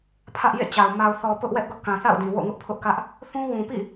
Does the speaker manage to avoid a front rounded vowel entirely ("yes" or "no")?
yes